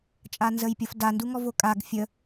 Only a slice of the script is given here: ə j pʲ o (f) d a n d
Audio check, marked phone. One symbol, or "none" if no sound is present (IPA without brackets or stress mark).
f